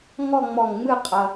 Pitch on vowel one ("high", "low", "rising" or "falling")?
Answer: falling